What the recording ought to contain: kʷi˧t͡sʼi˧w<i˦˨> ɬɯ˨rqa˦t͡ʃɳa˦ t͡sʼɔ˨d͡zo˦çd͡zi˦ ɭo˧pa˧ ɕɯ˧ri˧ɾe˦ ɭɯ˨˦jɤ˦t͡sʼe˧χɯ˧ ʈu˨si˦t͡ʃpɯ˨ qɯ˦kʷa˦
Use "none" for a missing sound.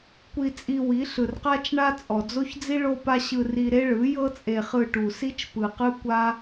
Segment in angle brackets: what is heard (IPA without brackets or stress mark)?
i˨˦